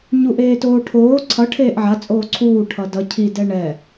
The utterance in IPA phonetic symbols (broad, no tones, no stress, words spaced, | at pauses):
ɲuʔeːtoːʈʰoː ǀʰʌ ʈʰeːʔʕat͡sʼoː ǀʰuː ʈʰʌdʌ cʰidɛ ɳɛ